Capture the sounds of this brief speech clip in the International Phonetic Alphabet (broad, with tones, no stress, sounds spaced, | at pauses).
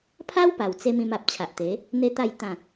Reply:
pʰ a˦ w p a˨˩ w t͡s e˦ m ĩ˧ m a˨ p̚ t͡ɕʰ a˨ ʔ t̪ e˨˦ | n̪ e˦ t̪ a˥˧ j t̪ ã˥˧